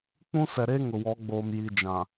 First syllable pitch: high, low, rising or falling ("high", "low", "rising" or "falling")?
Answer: high